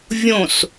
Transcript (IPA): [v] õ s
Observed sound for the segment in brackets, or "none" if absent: vʲ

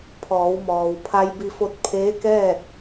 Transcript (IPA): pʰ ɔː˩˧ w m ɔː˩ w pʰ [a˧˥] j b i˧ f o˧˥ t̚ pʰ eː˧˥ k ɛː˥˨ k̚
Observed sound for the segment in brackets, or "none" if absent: a˧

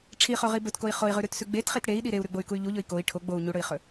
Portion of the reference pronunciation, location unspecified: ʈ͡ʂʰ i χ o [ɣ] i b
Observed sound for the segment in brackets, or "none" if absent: ʁ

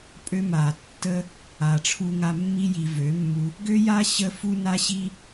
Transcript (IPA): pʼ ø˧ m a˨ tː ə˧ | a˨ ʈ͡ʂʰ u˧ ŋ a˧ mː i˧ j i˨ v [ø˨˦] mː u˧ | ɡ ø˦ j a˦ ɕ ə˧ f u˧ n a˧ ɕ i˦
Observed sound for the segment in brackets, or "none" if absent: ø˨˦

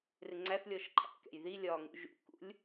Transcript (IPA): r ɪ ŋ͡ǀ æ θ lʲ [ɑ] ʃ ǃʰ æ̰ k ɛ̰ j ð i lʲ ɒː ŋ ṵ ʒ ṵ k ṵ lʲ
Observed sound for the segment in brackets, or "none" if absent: ɔ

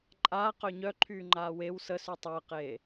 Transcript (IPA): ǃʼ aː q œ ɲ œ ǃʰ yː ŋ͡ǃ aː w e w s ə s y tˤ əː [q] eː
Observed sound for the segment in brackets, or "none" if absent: q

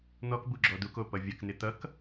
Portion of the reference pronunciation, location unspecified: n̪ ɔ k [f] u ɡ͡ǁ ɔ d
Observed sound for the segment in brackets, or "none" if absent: b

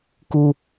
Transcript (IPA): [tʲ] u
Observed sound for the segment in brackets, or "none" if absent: k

